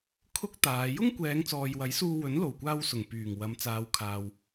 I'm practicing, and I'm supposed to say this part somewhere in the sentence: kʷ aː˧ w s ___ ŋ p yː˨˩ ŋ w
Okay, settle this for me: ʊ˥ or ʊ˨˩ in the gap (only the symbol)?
ʊ˨˩